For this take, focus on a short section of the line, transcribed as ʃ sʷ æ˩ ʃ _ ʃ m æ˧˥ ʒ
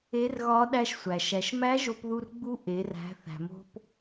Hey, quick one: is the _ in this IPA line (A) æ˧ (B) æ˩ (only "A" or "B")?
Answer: B